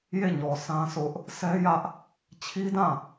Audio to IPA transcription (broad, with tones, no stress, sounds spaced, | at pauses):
j e˦˨ ɲ ɔ˨ s ã˦ s ʊ˦ ʔ | s ɛ˦ j ä˦ ʔ | t͡ɕʰ i˦ d ã˦˨